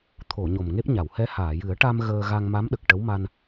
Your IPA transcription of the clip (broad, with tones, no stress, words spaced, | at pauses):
t̪ʰo˨˩˨ ɲo˨˩mŋe˦˥p̚ ɲa˨˩˨whɛ˧˥haː˨˩˨ jɨ˨˩˦ə̯ʈa˧m ɣəː˧ ɣa˧ŋma˧˥mɗə˨˩k̚ ʈə˧˥wma˧n